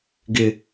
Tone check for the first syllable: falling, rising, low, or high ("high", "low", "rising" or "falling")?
low